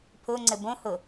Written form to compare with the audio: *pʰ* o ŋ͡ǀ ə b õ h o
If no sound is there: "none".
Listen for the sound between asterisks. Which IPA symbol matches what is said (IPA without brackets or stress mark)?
pʰ